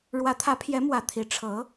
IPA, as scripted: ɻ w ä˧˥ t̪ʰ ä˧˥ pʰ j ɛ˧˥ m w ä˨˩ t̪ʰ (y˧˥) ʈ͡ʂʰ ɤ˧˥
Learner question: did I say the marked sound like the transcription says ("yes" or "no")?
no